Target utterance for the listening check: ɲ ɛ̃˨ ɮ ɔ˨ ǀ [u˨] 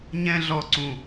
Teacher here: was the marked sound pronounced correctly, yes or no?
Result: no